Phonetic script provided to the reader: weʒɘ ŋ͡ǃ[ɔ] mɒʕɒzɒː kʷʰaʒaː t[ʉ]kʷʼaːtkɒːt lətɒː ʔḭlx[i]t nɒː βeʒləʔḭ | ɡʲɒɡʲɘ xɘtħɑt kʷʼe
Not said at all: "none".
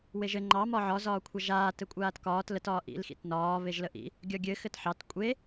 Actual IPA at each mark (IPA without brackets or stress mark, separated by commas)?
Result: ɑ, ɘ, ḭ